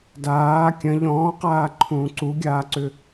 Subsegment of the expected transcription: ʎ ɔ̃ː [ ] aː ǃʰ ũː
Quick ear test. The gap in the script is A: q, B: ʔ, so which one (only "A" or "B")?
A